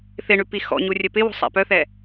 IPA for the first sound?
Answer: θ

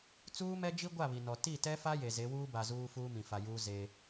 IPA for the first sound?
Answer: t͡s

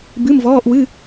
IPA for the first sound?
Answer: b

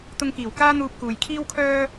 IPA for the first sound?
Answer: t̪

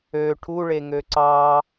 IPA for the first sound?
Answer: ø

